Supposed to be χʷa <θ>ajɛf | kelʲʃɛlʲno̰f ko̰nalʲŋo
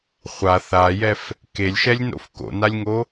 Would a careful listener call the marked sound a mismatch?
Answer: no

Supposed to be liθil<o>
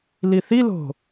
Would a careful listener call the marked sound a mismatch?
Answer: yes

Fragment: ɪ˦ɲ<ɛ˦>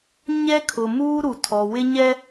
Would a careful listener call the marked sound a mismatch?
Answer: no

